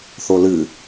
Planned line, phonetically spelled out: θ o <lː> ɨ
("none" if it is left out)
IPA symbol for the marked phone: l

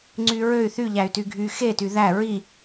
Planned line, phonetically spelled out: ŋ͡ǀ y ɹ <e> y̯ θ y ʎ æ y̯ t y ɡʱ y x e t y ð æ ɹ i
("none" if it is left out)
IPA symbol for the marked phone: ø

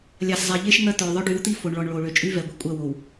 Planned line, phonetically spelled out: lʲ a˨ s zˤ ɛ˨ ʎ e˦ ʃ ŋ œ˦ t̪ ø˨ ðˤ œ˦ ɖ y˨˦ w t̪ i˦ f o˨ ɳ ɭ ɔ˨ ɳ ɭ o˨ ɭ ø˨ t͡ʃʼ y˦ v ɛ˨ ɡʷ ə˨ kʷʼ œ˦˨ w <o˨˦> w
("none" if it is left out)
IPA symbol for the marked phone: o˨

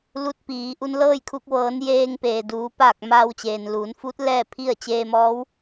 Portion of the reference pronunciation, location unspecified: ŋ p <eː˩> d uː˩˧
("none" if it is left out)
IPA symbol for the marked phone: eː˩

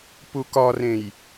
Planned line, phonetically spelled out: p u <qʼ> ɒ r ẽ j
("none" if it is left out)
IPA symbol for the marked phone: k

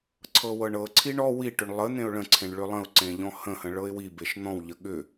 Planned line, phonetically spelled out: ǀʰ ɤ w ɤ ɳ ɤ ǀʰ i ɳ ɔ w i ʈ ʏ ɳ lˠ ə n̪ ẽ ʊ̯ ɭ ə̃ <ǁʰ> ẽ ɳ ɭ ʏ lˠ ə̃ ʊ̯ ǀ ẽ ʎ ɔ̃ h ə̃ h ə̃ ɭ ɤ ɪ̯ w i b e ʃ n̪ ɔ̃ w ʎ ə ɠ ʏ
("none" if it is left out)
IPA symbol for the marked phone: ǀʰ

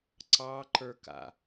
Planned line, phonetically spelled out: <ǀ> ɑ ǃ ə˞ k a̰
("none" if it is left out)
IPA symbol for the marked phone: ǀ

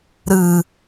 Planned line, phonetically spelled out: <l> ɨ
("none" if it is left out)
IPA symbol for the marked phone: ɾ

